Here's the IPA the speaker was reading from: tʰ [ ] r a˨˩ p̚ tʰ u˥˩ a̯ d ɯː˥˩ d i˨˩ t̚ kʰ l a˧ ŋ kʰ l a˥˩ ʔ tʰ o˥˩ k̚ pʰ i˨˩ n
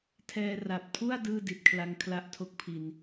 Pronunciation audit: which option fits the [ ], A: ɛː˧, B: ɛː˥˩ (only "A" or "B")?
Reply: A